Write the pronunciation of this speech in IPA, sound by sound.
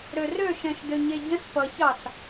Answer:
ɾørøʃɛ̃ʃ døɲeɟə̃s pʌçɑs

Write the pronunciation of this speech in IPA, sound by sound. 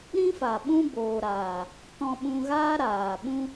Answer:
ɾĩ˦fa˨ ɓũ˦boː˨ɾaː˨ | tɔ̃˧ɓũ˧ɣaː˦ ɾaː˨ ɓũ˦

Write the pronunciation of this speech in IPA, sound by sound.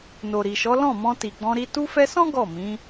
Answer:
no˨ɾi˨ʃɔ˨˦ lɔ̃˦˨mɔ̃˧ ti˨ɡ͡bɔ̃˧ɾi˧ tu˧fɛ˧sɔ̃˦ ɡɔ˦˨mĩ˨˦

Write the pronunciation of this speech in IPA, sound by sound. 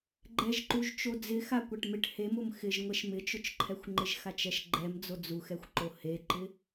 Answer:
ɡ͡ǃɛʒǃuʒ t͡ʃod͡zɪxa kʷaʈmɪʈ hemʊm xɪʒ ŋʷɛʃmɪt͡ʃʊt͡ʃǃʰɛxʷ ŋ͡ǃɪʒxat͡ʃɛʃɡ͡ǃɛm d͡zod͡zuxɛxʷǃo heǃɪ

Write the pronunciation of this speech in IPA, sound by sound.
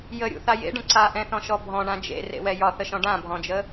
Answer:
jəɾʲṵθa jḛɖə̃ ǀaʔɛ̃θɔ̃ʃɔ bʱɔ̃ɳã d͡ʒḛrḛwɛ jɒθəʃɔ̃ ɖãbʱɔ̃d͡ʒə

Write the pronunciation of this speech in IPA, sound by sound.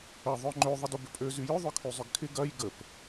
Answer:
ə ðˤœŋ͡ǃø ðˤɪdobʏpʼø zyjʏ ðˤœkʰyzˤʏɡkʰɪ ɡɐj ɡəp

